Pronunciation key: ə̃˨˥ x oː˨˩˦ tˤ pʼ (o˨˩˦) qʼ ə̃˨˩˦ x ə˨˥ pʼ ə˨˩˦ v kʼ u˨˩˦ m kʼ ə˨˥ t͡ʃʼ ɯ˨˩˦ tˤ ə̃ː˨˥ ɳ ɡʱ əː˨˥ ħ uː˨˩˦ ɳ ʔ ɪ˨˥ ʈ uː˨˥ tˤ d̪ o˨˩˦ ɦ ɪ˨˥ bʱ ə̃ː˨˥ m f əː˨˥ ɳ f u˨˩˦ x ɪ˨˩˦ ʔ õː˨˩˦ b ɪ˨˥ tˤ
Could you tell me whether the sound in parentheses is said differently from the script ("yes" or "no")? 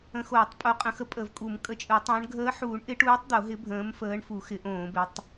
yes